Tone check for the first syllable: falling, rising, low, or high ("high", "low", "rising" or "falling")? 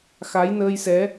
rising